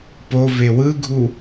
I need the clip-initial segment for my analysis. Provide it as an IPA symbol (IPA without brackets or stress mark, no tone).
p